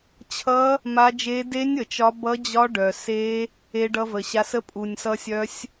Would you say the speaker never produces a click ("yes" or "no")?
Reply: yes